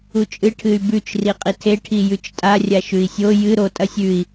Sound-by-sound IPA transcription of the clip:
ut͡ʃʼɨ ʈʰɨy̯bʉt͡ʃ riqʼitʰe ʈʰijʉt͡ʃtʼa rʲaʃʉi̯sʲo jɨ ɾo tʼɐsʲʉi̯

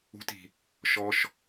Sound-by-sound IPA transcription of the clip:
ṳti̤ | ʃɔʃ

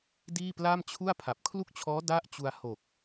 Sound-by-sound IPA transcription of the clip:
diː˥˩pla˥˩mt͡ɕʰu˥˩a̯ pʰa˨˩p̚kʰlu˥˩k̚t͡ɕʰɔː˦˥ da˥˩ʔt͡ɕu˧a̯ ho˨˩k̚

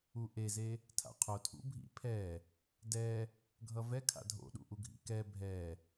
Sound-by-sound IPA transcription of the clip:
uʔeze | tʰa̰qʰotʰṵ bʱḭpʰɛ | dɛ | ɡʱʌvɛ kʰa̰dʱo̰ɗṵʔu ɡʱḭkɛ bʱɛ

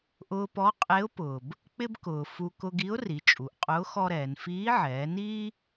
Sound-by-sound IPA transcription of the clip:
ʔʊː˧pɔ˧˥qʼe˧˥ʊ̯ pʊː˩b | k͡pɪ˥bkʊː˩ fu˧ kʊ˧ɡi˧˥ʊ̯ ri˩˧t͡ʃʼu˩˧ʔqʼʊː˧˥ xɔ˥ɾɛː˩˧n fiː˧˥ʕɛː˩˧niː˥

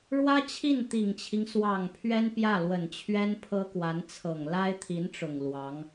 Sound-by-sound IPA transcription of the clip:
ɻwä˥t͡ɕʰi˥˩nt̪i˨˩ŋt͡ɕʰi˦ŋ swɑ˨˩ŋ pʰɥɛ˥npjä˥˩lwə˨˩nt͡ɕʰɥɛ˥n pʰɤ˥kwa˧˥nt͡sʰɤ˨˩ŋ la˥ɪ̯t̪ʰi˧˥nʈ͡ʂʊ˨˩ŋ lwɑ˧˥ŋ

